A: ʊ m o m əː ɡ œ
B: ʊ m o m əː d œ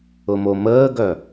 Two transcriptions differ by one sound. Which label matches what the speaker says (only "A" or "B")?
A